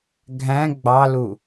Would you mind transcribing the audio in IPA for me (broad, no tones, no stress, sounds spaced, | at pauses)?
ɡʱ æ̃ ɡ͡b ɑ l u